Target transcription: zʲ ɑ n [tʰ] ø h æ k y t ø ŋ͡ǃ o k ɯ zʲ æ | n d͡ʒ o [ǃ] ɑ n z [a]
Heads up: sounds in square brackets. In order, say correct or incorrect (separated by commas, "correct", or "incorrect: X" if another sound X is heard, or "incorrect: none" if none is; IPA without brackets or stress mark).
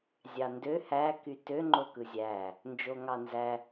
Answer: incorrect: d, incorrect: ŋ, incorrect: æ